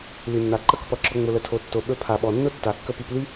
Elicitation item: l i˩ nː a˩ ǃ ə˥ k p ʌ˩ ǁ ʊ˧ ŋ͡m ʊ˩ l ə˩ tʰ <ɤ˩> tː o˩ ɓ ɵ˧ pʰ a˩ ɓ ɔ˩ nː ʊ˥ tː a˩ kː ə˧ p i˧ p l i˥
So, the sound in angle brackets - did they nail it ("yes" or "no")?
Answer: no